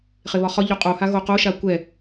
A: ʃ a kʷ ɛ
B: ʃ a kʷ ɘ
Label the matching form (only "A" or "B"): A